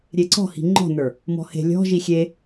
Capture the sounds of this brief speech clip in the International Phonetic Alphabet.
ɾʲeǀɔ̤hi̤ ŋ͡ǃɔ̤nə˞ | mɔ̤he̤ lʲɔ̤ʒi xʲe

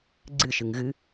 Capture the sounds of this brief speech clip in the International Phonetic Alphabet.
ɡ͡ǀɨʃɨŋ ɣɨ

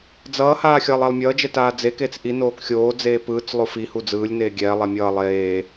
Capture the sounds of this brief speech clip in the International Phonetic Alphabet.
d͡zʌːhaː xʲʌːlˠɛlˠmʲʌːd͡ʒɛ taːd͡zekeːt͡s ʔinoːk xʲoːd͡zeː pɯːt͡slˠo fihu d͡zɯːlʲneː ɡʲɛːlˠɛ mʲʌː lˠeː

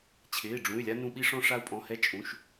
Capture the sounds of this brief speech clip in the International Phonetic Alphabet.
t͡ɕʰɪː˩˧˩ ɖ͡ʐũ˩˧˩y̯lʲa˧ nũ˧ɓi˧ ʂɔ̃˧ʂa˧u̯pʼɔ̃˩˧˩ hɛ˧t͡ʃʼũ˩˧˩ʃ

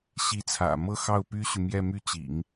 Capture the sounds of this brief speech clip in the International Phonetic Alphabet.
ɕi˧˥t͡sʰä̰˨˩ mɤ˥˧xɑ˥˩ʊ̯ py˥ɕy˨mjɛ˥˧ my˥˩t͡ɕḭ˨˩˦ŋ

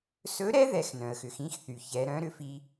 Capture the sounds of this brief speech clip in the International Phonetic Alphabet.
sɵ˧˥ɾɛ˥ ðɛ˧˥xnœ̃˩ə̯xʏ˩˧x ĩ˥xθy˩ çɛ˩˧ɾœ̃˧˥ɾʏ˧fi˧

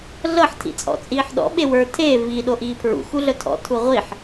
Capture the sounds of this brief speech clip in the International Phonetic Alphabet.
ɮɤħ tʰḭt͡sʼɔ̰t͡sʼiːħɗɔ̰ ɓewə˞ tʰeː vi ɗoʔiːpʰɹṵ xuɮœtʰɔ̰ tʰuʁʷiħ

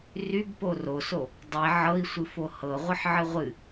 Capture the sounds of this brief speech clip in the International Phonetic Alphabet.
rybpo roso | dˤi ʕɤi̯sʷɨfo hɤʁʷɯħʕɨ ʁʷɨ

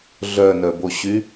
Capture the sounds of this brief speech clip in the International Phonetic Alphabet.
ɮœnœboɕy

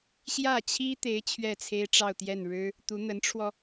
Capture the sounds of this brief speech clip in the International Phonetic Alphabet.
ɕjä˥˩t͡ɕʰi˥t̪e˧˥ɪ̯ t͡ɕʰɥɛ˥˩t͡sʰe˥ɪ̯ʈ͡ʂɑ˥˧ʊ̯t̪jɛ˥˩n ɻɻ̩˥ | t̪u˧˥n̪ə˧˥nʈ͡ʂʰwɔ˧

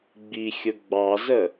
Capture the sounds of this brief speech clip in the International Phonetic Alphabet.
ɡ͡bixʲʊ ɡ͡bɑzə

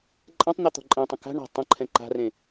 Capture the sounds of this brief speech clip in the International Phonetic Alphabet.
ǃʼɛ̃tˤn̪ɛ t̪ɔ̤ǃʼɛ̃tˤə̃ ka̤ ɳa̤ tˤə̃ ǃʰɛ̃ǃa̤rẽ

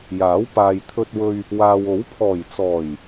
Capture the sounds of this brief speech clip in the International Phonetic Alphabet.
jaː˨˥wpaː˨jt̪ʰɵ˧t̚wɵ˧ɥ | waː˧w o˨˥wpʰɔː˨˩jt͡sɔː˨˩j

